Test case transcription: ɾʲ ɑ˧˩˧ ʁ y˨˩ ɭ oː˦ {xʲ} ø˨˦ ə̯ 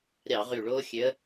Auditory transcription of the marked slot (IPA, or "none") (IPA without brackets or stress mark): xʲ